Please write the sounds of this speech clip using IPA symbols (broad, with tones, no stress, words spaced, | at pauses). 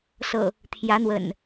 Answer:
sɤ̰˨˩ | t̪ʰjä˨˦n̪wə̰˨˩n